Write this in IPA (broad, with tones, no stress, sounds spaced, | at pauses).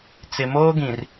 t͡s ɪ˨ m oː˦ ɡ ĩ˨ r